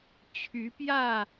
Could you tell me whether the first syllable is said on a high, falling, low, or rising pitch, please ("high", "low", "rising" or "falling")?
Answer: rising